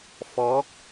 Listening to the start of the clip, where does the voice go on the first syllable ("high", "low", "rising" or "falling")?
rising